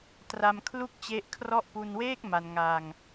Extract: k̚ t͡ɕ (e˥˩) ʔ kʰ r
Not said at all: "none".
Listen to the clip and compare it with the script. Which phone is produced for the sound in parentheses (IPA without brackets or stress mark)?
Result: e˦˥